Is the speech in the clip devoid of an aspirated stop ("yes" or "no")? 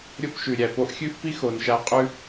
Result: yes